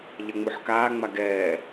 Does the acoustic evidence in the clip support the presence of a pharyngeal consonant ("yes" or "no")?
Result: yes